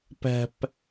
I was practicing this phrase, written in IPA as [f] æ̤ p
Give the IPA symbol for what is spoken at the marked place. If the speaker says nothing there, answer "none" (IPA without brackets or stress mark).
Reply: p